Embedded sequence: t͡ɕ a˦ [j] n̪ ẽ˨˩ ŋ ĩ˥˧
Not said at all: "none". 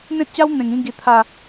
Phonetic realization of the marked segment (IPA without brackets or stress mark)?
w